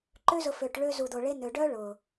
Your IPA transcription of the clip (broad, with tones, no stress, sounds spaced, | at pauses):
ǃ ø˦ z ʊ˧ f ø˧ ʈ ɭ ø˦ z u˧ d̪ o˧ ɭ e˦ n̪ ø˧ ɖ œ˦ ɭ ʊ˨